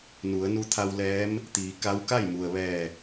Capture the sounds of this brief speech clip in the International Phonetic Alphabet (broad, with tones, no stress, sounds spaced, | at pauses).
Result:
n u˩˧ ə̯ n u˧˥ t̪ʰ a˧ w l ɛː˧˥ m | t̪ iː˩˧ k a˧˥ w k a˥˨ j m u˩ ə̯ ʋ ɛː˧˩